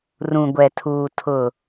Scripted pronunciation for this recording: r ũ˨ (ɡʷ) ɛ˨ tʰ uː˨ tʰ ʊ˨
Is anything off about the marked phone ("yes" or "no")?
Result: no